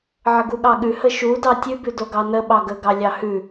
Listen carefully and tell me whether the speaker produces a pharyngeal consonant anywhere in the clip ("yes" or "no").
yes